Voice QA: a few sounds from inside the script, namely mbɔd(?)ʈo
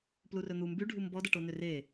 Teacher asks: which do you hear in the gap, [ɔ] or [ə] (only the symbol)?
ə